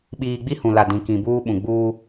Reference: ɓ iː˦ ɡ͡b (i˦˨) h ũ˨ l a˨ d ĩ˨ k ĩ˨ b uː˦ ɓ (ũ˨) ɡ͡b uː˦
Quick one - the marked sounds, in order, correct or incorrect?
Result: incorrect: i˦, correct

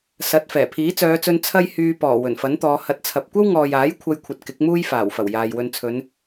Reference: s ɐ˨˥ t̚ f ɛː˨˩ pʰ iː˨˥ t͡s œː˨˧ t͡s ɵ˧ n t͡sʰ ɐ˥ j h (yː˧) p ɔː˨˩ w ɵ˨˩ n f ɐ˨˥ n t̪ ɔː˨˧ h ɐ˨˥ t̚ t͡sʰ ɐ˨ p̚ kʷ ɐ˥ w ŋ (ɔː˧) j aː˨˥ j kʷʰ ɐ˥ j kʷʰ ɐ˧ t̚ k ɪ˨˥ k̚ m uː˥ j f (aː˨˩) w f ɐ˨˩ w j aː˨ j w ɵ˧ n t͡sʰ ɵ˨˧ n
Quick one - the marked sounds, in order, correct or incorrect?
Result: correct, incorrect: ɔː˨, correct

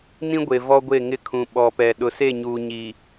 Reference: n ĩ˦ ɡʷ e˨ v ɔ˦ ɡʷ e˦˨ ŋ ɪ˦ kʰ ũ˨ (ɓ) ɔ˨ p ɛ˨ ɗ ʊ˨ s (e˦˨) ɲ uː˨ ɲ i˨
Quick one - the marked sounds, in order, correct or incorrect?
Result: correct, correct

